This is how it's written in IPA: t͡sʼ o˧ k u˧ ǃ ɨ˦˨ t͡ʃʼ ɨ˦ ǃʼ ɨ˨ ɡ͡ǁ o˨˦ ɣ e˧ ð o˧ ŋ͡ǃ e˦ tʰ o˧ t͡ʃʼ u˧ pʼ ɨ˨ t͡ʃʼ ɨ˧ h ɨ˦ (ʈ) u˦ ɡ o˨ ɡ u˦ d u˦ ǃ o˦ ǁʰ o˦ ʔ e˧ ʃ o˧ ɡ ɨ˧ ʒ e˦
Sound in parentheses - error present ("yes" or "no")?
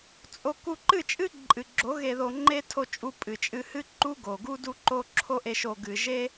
yes